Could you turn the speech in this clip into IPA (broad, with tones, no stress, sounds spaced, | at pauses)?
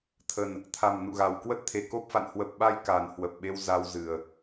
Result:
t̪ʰ ə˨˩ n | t̪ʰ a˨˩ m n ṵ˧˨ ɣ a˨˩ w k w ə˦˥ t̚ t̪ʰ e˧˩ k o˦˥ p̚ f a̰˧˨ n h w ə˨˩ p̚ ɓ a˧ j k a˨˩ n h w ə˨˩ p̚ ɓ e˧ w z a˧ w z ɨ˨˩ ə̯